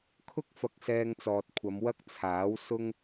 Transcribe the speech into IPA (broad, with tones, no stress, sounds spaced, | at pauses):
kʰ ʊ˥ k̚ f ɐ˨ k̚ s ɛː˧ ŋ t͡s ɔː˨ t̚ kʷʰ ɐ˨˧ m w ɐ˥ k̚ t͡sʰ aː˨˥ w s ʊ˥ ŋ